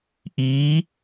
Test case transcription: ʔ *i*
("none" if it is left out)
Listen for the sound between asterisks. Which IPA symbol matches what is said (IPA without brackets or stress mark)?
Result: i